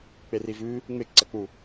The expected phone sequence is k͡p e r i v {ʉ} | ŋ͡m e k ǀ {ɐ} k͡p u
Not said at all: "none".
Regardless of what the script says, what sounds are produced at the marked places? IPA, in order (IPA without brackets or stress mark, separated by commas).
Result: ʉ, ɐ